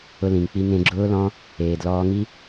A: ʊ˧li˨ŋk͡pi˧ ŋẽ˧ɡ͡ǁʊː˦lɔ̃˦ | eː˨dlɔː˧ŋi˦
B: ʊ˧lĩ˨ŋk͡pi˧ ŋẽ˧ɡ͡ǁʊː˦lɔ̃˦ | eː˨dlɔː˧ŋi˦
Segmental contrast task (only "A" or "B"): B